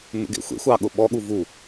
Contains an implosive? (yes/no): yes